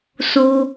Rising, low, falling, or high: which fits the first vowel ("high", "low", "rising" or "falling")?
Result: high